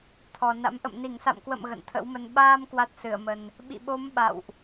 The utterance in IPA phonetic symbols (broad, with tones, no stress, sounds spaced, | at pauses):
t̪ʰ ɔ˨˩ n a̰˧˥ m ʔ ə̰˧˨ m n i˧˩ ŋ s a̰˧˨ m k w ə̰˧˨ m ɣ ə̰˧˨ n t̪ʰ ə̰˧˥ w m ə˨˦ n ɓ aː˧ m k w a˦˥ t̚ s ɨ˧˩ ə̯ m ə˨˩ n | ɓ ḭ˧˨ ɓ o˨˦ m ɓ a̰˧˨ w ʔ